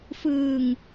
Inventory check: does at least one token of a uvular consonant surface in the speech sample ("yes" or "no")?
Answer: no